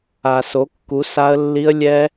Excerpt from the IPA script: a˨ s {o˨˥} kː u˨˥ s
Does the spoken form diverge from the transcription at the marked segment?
no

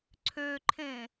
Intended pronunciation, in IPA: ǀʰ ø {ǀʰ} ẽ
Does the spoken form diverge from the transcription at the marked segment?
yes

